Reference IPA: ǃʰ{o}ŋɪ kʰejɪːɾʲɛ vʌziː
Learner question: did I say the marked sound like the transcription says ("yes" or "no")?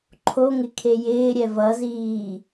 yes